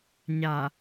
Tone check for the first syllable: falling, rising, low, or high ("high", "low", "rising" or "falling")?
low